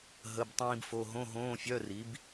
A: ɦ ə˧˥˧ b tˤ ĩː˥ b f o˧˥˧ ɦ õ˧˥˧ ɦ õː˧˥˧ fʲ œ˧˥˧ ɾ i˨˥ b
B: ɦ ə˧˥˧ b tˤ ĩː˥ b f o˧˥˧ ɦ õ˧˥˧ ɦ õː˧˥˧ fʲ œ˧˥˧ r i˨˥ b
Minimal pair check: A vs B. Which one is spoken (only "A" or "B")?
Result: B